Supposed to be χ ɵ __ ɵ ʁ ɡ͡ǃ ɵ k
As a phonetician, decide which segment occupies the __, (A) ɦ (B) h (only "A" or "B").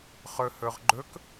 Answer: B